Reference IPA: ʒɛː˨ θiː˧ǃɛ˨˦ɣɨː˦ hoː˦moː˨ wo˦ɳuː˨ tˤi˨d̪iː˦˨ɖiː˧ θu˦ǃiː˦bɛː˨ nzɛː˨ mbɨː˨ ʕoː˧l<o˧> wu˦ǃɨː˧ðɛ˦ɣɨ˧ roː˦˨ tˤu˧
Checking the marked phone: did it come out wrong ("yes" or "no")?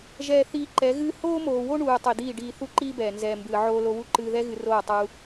no